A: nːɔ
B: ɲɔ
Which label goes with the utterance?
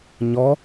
B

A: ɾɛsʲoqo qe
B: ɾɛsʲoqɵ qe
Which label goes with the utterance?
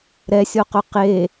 B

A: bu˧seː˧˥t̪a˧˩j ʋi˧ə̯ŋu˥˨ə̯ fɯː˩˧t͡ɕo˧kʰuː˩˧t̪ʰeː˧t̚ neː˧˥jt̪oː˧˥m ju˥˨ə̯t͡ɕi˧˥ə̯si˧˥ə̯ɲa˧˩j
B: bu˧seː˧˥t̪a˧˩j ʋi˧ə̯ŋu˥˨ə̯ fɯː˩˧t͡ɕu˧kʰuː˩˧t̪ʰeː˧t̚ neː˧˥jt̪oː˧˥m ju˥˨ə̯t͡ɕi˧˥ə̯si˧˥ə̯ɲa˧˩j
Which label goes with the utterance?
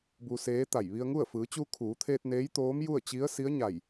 B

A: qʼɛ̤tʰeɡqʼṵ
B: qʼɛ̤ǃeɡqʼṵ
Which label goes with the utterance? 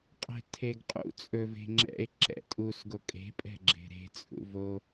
A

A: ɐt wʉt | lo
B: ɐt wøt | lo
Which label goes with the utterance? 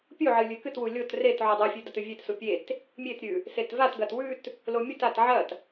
A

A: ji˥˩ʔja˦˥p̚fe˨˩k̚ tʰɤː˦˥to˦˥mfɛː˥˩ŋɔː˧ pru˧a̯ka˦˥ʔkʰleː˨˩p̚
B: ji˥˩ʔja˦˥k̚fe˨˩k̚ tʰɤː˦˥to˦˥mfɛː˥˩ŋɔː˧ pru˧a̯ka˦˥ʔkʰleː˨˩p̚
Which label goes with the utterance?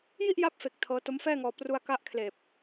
A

